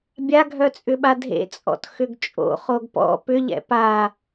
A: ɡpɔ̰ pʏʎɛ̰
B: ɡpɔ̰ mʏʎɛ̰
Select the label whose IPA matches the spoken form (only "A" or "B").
A